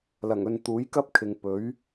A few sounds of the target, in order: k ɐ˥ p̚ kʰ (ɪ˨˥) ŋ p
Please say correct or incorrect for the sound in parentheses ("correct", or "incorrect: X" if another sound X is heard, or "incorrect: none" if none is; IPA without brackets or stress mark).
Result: incorrect: ɪ˨